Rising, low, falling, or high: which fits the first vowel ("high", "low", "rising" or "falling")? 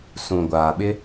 low